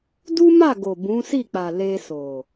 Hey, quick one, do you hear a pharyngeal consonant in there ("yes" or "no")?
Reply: no